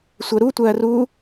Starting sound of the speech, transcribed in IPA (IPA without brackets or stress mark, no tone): sʷ